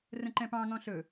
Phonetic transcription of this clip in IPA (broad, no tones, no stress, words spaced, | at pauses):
rə̃ǃɛ̃pɑ̃ ŋɔ̃ɬɵ